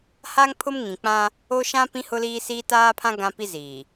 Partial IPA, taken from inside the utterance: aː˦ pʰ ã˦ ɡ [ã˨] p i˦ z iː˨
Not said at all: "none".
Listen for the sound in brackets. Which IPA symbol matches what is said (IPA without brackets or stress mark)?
ã˦